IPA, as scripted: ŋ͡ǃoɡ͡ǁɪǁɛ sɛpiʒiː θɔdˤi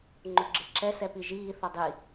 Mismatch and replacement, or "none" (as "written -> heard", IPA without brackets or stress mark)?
none